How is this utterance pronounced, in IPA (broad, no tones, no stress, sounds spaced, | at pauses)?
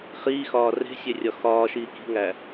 χ iː x ɒː r e̤ sʲ e rʲ ɒ x ɒː ʃ iː k i̤ ŋ æ